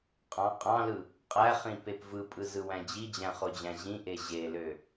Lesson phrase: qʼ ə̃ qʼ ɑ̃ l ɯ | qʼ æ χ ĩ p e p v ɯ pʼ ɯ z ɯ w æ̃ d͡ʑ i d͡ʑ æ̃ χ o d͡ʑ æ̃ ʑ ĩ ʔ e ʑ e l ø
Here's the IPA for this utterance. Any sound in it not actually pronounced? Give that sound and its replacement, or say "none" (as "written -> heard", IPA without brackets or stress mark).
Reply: ə̃ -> ɑ̃